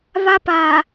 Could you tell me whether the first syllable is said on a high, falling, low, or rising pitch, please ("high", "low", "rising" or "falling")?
high